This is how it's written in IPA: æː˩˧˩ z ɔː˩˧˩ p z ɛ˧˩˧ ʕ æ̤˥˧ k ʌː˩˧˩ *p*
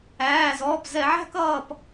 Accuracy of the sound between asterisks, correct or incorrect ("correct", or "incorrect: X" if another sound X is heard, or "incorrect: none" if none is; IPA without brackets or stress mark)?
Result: correct